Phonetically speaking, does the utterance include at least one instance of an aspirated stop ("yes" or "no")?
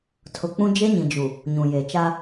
yes